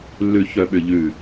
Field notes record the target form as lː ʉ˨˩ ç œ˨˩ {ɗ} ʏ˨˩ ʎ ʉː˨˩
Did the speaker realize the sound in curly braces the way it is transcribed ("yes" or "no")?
no